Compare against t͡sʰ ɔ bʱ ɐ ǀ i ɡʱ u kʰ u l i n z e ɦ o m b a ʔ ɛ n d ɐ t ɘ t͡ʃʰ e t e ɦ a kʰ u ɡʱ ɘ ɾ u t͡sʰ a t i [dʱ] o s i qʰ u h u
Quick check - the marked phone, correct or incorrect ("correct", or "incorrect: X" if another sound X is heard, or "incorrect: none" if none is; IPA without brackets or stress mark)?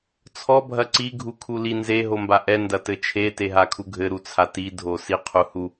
correct